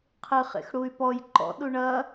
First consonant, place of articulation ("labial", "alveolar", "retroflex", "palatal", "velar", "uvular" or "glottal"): uvular